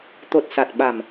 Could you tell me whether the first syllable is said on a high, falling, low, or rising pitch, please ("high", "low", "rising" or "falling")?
low